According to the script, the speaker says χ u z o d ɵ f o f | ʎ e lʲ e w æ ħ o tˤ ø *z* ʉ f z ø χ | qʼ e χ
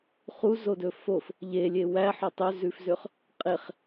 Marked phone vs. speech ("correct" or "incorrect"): correct